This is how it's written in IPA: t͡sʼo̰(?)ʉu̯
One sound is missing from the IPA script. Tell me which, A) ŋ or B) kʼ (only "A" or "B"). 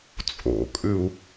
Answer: B